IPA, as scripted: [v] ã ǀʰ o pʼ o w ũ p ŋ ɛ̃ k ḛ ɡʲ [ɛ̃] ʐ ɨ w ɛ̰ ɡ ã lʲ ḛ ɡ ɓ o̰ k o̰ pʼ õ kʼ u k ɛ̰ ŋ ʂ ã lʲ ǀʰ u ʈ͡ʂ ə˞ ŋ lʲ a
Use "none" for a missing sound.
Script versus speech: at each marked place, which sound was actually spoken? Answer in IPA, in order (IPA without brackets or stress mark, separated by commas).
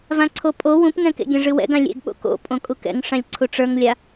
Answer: v, ɛ̃